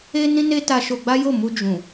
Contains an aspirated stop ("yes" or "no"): no